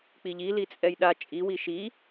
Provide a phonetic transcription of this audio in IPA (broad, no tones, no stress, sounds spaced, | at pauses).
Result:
k͡p i ʎ i l i t͡sʼ ɛ j ɗ a t͡ʃʼ i w i ʃ i